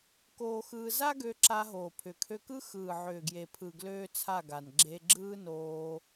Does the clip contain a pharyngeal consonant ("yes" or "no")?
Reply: yes